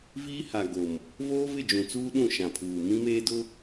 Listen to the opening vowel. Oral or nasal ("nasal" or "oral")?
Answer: oral